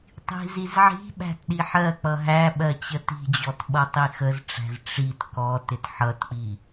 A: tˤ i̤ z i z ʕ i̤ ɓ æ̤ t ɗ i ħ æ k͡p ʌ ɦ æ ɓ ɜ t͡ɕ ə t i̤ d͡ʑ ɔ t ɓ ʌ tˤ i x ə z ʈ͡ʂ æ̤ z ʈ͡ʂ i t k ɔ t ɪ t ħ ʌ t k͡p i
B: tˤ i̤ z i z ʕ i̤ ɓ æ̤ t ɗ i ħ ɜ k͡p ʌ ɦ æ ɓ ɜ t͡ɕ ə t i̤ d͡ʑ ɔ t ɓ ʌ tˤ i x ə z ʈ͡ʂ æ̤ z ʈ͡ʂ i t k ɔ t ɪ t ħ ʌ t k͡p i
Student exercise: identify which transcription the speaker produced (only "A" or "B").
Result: B